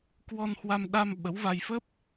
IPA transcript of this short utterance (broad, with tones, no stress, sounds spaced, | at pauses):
k w ɔ˧ n h w a˧ m ɗ a˧ m ɓ ə˨˦ w v a˧ j f ə˦˥ p̚